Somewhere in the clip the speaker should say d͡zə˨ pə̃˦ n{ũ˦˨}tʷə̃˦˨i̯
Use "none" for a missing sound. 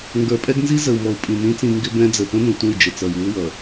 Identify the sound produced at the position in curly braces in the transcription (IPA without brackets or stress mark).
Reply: ũ˨